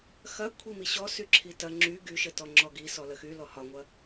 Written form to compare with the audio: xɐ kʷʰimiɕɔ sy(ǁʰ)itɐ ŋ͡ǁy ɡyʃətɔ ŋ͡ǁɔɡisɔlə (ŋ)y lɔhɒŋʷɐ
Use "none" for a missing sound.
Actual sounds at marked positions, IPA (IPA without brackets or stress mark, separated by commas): ǁʰ, x